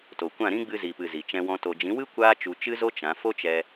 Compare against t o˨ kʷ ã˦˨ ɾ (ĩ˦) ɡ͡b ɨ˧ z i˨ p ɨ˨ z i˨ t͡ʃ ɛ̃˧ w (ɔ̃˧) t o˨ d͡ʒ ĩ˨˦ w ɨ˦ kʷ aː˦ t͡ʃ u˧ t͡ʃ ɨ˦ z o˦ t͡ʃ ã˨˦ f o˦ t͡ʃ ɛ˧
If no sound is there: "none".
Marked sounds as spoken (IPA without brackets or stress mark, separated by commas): ĩ˦, ɔ̃˧